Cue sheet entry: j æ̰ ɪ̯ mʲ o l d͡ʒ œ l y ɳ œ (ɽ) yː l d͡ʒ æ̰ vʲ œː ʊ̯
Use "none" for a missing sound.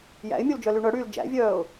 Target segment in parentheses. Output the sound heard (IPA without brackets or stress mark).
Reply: ɽ